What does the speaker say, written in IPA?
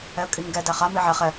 ɛə̯kʼiŋɡɛ dæχa miʕɛ χɛ

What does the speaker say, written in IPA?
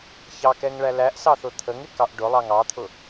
çɑkɛŋɭæ læʔsɑθʊ t̪ʰəŋɪkɑʔ ɖʊlˠɑŋ ɑt̪ʰʊ

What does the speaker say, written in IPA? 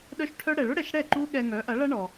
ɗœ˥ʃʈʰœ˥ ɽɛ˩ɭʊ˥ɽɛ˩ʃ ɽɛ˥˩ ǃu˥ɠɛ˧ŋœ˩˥ ʔɐ˩˥ɭɐ˥ɳɔ˩

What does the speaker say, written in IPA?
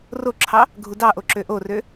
roǁʰɑ | ɡʱudɑʔo ǁøʔorø

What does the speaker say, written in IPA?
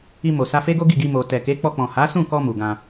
i˧mo˨sa˧fe˦ ɡo˦ɡi˦˨ɡi˧ mo˨tɛ˨ke˨˦ k͡pɔ˧k͡pɔ̃˨ ha˨˦sũ˦˨kɔ˧ mu˨ɡã˧

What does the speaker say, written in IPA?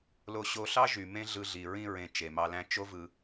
lo˧ɕo˧ɬɑ˦ ʒy˨mẽ˦ɮɯ˧ɮi˨ ɹĩ˧ɹẽ˨ t͡ʃe˨mɑ˧læ̃˦ t͡ʃo˦vɯ˧

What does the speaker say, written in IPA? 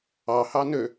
ɑhɑ nø

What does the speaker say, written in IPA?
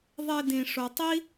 ðˤe˧dĩ˨ʂo˨tˤi˦

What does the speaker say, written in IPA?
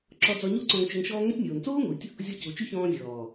ǁɔ˧d͡zɔ˧ɲo˦ ǀɔ̃˧ŋt͡ʃɵ˧ŋʃɔː˦ ŋœ˧tʲnʲoː˨nt͡soː˦ŋu˨tʲ | zʲɔ˧cu˨t͡ʃʉ˦ çɔ̃ː˧zʲɔː˨

